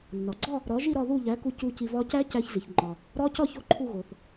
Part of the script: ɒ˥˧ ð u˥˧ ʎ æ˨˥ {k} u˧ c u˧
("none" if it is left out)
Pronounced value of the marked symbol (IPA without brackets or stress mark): k